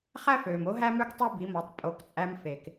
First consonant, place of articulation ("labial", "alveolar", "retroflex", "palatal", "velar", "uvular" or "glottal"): uvular